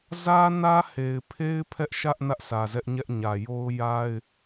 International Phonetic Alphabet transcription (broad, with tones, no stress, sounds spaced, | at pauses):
z ä˦ n ä˦ h e˨ ɪ̯ pʰ e˦ ɪ̯ pʰ ɛ˦ ʔ ʃ ä˦ ʔ n ä˦ ʔ sʰ ä˨ z ɛ˦ ʔ ɲ ɛ˦ ʔ ɲ ä˨ j o˦ ʊ̯ j a˦ ɪ̯